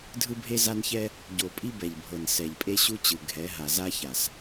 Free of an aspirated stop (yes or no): yes